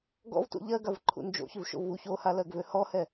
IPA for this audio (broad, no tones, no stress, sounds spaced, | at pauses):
ɡ ɔ̰ v t ṵ ʎ ɜ ɡ a v ǃʰ ṵ n d͡ʒ o̰ ç ʏ v ʃ o̰ v u ç o h a l ɜ ɡ v ø h ɔ h ɛ